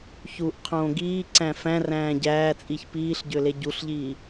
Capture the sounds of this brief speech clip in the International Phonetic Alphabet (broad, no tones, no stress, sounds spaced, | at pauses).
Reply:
ç u ʔ qʰ õː ɡ iː ǀ æ̃ f æ̃ r æ̃ː ɟ æː t͡sʼ i ç p iː ɬ ɟ ø l e ɟ u ɬ ʎ iː